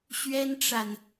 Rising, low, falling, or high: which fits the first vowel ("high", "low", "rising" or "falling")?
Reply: high